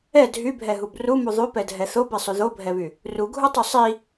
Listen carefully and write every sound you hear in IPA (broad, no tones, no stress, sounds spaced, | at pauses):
ɛ dʱ y bʱ ɛ ɦ u b r u m u ðˤ y p ɛ dʱ ɛ θ o b ɛ sˤ y ð o bʱ ɛ β y | r u ɡʱ u tˤ y sˤ i